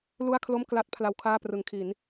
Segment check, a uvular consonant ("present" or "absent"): absent